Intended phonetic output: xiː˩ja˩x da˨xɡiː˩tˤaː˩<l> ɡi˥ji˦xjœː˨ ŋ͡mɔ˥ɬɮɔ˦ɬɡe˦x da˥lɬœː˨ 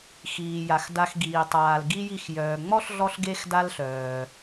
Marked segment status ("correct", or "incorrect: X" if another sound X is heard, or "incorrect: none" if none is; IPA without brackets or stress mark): correct